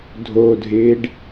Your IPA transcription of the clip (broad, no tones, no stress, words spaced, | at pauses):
dʱodʱɪːɖ